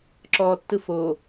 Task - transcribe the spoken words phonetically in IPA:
ǁɔ tːɯfo

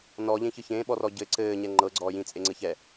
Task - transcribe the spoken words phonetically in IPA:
nɔʎẽçɯ çẽːɓɔrɔ ɟɘ ǀɘːɲɛ ŋ͡ǃɤɡ͡ǀɔː jĩt͡sʼeŋ͡ǀɘçɛ

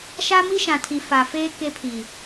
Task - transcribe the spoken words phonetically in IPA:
ʃa˦mi˦ʃã˨tʰi˨ fa˨feː˦ ke˦ pʰi˨

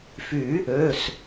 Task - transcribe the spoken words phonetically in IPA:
fy˨˩˦ | ø˩˧˩s

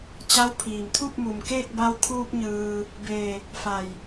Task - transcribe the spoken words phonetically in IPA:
t͡ɕa˧˥w pʰiː˩mt̪ʰu˥˨p̚mu˩mkeː˥˨k̚ ba˧wkʰuː˧p̚ ɲɯː˩ | beː˧˩ | fa˧˩j

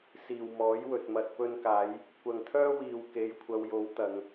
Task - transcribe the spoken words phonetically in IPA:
siː˨wmɔː˨˥jwɵ˨t̚ mɐ˨t̚pɵ˧nkaː˨˧j | kʷɐ˨ŋt̪ʰœː˥ wiː˨w ke˨˧jkʷʰɐ˨˧wjo˨˥w t̪ɐ˨˧ŋ

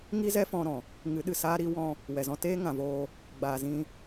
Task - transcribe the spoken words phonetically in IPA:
ŋi˦zɛ˦fɔ̃˧ɾɔ̃˨ | ŋɨ˨˦ɗɨ˨ saː˦ɾi˦wɔ̃˦ | wɛ˨zɔ̃˧teː˦ ŋã˨voː˧ | ɡ͡baː˨zĩ˧

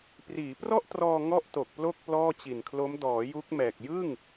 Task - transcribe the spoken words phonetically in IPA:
priː˩˦prɔ˥˩ʔtrɔː˧ ŋɔ˥˩ʔto˨˩k̚plo˥˩k̚ plɔː˥˩t͡ɕi˨˩nkʰlo˦˥m dɔː˩˦ ju˦˥k̚mɛː˨˩k̚ jɯ˥˩ŋ

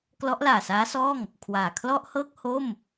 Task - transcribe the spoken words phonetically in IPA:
klɔ˦˥ʔlaː˨˩saː˦˥sɔː˥˩ŋ | kʰwaː˨˩ kʰlɔ˥˩ʔhɤː˥˩k̚ ho˥˩m

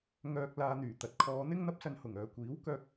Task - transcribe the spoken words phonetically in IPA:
ŋœː˨k̚laː˨n̪yː˨˩ t̪ɐ˨˥t̚kʰɔː˨˧n̪ɪ˥ŋ n̪ɐ˥p̚sɐ˧nhʊ˨˩ŋ œː˨kʷiː˨˥w kœː˧k̚

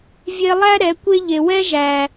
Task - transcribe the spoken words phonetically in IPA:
vʲe˧lˠæ˦ ɾɛ˨˦kʷe˦ʎe˨ wɛ˦ ʒæ˨

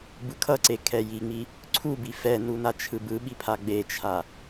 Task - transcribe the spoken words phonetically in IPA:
bɯkʰʌǀe kʰɛjiŋ͡mi | ǀʰubi fɛnu nat͡ʃʰɯbɯɓi pʰaɡ͡bet͡ʃʰa

